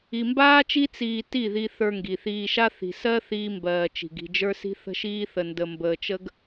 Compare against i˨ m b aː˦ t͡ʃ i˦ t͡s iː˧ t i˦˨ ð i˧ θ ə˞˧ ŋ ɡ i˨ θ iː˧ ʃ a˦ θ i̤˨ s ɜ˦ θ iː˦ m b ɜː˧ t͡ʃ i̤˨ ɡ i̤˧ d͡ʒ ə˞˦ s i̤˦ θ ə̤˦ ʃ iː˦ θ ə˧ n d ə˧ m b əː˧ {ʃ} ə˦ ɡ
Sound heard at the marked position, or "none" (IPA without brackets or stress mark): t͡ʃ